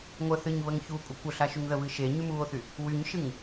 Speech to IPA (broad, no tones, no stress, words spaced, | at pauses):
ŋʷə θɨɲβəŋ çu kʷʼəkʷəɬa ʃyŋðəβɨ ʃe ɲymuo̯θy | wyɲʃɨŋ